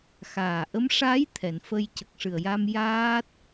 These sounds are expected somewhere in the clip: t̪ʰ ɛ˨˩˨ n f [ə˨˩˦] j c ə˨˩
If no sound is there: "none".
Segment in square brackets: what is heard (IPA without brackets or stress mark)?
ə˧